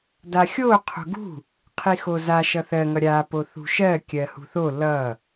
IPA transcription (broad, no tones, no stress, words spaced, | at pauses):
daxʲo qʰo̤ɡṳ | qʰixoza ʃʌθɜ ŋʌɾʲa poθṳʃɜ kʲɜhṳθo lʌ